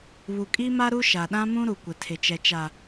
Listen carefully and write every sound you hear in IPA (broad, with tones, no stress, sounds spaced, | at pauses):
β u˨ kʼ i˦ m a˦ ɾ u˦ ʃ a˨ ɗ ã˦ m ũ˦ ɾ u˨ kʷ ɪ˨ tʰ ɪ˨ t͡ʃ ɛ˨ t͡ʃ a˨